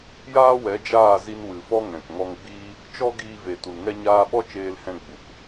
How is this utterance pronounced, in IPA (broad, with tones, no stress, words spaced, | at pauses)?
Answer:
jaː˦wɛ˨˦d͡ʒaː˦˨zi˧n wɨ˨fɔ˦ ŋɛ̃˨kŋɔ˧ŋɡ͡biː˦ | t͡ʃɔ˦ɡiː˧ve˨ tu˨lŋɛ˦ɲaː˦ ɓɔ˦t͡ʃeː˧lhɛ̃˧ ɡ͡bu˨k